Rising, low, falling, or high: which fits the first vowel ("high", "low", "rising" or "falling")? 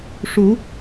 rising